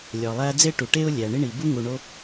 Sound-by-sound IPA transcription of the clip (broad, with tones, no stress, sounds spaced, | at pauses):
lʲ ɒ˩ lˠ æ˦ d͡z e˥ ʈ u˩ ʈ e˥ ʊ̯ lʲ æ˩ ɳ i˥ ɳ i˩ b u˥ ŋ u˨ ɳ o˦